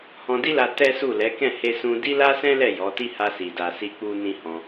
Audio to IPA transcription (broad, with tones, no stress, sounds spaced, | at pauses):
h ɔ̃˧ d i˦ l a˧ t ɛ˦ s u˦˨ l ɛ˨˦ k ɛ̃˦˨ h e˧ s ũ˧ d i˦ l a˦ s ɛ̃˦ l ɛ˦˨ j ɔ˨˦ t i˦ h a˧ s i˨ d a˨ s i˧ k͡p u˧ n ĩ˦ h ɔ̃˧